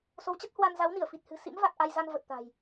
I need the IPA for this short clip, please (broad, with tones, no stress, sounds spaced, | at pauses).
s o˨˦ w t͡ɕ ə˦˥ t̚ h w a˧ n z a˨˦ w n i˧˩ ə̯ f i˨˩ t̚ h ɨ̤˨˩ s ḭ˧˥ m v a˨˩ k̚ ʔ a˧ j z a˧ n v ə˨˩ t̚ t̪ a̤˨˩ j